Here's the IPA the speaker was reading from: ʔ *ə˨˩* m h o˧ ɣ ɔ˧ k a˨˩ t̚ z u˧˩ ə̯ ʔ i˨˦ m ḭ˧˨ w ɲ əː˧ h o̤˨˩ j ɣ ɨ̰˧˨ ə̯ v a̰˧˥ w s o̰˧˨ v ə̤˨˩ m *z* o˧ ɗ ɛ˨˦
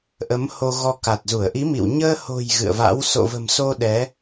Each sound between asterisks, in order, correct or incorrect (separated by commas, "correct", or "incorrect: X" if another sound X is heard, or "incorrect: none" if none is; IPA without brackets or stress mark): incorrect: ə˨˦, incorrect: s